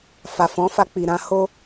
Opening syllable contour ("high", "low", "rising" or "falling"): low